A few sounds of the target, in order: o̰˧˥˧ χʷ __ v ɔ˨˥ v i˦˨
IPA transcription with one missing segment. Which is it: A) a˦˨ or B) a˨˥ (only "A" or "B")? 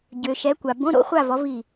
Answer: A